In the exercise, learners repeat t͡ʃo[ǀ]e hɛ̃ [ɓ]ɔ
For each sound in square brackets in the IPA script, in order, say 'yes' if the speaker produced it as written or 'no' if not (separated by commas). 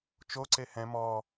yes, no